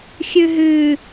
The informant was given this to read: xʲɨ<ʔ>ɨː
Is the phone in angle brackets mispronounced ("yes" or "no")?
yes